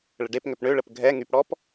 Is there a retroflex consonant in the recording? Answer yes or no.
yes